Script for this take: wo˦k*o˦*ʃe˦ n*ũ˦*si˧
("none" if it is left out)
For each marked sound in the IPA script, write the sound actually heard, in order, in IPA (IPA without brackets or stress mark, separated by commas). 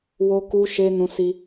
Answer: u˦, ũ˧